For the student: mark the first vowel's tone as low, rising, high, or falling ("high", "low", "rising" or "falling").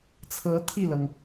rising